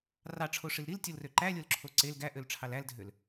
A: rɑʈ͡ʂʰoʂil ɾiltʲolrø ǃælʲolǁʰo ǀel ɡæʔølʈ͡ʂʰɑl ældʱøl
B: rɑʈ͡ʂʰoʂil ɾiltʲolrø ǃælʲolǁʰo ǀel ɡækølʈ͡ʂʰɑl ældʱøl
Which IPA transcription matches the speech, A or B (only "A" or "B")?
A